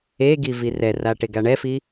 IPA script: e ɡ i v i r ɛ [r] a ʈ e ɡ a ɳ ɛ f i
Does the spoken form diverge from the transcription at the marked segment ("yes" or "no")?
no